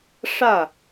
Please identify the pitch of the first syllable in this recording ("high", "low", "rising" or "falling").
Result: falling